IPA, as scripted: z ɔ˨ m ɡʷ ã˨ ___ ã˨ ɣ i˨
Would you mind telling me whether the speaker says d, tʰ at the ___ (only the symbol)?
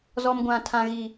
tʰ